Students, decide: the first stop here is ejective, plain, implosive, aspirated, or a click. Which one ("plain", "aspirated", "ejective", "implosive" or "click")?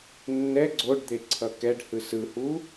click